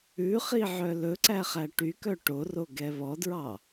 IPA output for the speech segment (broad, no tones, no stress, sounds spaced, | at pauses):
ʉ χ i ʕ œ l ɵ ǀ æ χ æ ʈ y k œ ʈ o r o ɡ ɛ β ɔ d ɹ ɑ